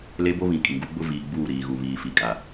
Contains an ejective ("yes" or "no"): yes